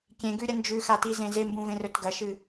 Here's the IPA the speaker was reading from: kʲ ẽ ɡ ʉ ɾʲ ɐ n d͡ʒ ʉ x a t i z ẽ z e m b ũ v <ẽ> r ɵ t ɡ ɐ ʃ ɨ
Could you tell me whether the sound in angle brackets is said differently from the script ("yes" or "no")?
no